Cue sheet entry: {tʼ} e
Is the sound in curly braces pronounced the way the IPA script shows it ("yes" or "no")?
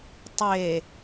no